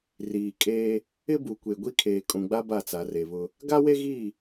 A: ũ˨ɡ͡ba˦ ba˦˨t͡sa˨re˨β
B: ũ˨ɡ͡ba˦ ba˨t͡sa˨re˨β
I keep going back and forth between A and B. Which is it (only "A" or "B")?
A